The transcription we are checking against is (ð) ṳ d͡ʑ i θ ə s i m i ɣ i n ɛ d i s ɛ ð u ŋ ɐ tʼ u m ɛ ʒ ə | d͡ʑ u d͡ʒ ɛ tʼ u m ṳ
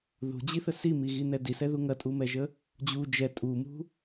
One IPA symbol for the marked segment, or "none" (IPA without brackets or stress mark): ð